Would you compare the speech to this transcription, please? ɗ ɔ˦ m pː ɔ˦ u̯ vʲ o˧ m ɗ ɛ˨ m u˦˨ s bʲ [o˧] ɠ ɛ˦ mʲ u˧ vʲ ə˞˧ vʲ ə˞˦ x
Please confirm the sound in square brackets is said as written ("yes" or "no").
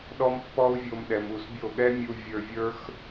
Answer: no